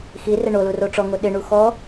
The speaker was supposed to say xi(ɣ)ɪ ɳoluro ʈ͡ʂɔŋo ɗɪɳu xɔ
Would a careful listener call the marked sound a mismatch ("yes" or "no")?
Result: yes